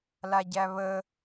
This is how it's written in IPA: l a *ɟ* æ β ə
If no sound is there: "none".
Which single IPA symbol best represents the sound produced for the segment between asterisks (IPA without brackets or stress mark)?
ɟ